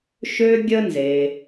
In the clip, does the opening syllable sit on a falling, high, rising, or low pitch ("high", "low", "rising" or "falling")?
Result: high